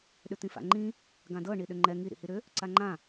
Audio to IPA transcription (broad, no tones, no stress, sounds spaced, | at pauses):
ɗ ʏ t̪ ĩ f a̰ ŋ͡ǃ ĩ | ɡ ã d ɤ ɳ i ɗ ʏ ŋ͡ǃ ɛ ŋ i ɾ ḭ h i ɾ ʏ | ǀ a ŋ͡ǃ ã